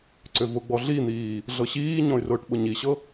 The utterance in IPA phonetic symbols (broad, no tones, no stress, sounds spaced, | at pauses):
ǀ ʏ v ʊ ɡ͡b ɔ ɮ i n̪ iː | ɮ ɤ ɕ iː ɲ ɔ̃ y̯ r ʊː ʈ ɓ ʊ ɲ i ɕ ɤ